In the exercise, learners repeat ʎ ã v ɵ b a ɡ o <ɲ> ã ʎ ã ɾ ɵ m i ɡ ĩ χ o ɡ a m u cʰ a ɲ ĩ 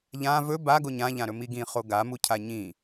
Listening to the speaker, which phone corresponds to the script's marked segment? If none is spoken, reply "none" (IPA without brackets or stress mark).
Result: ɲ